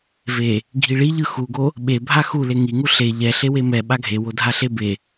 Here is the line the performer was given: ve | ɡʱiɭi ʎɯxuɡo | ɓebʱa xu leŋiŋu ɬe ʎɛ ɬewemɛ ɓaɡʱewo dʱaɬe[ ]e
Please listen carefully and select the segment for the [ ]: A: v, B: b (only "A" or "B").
B